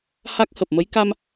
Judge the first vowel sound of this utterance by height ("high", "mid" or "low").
low